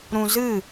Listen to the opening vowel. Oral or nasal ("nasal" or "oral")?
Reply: nasal